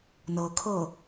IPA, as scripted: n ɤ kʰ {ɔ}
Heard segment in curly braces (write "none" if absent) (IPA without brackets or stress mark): ɤ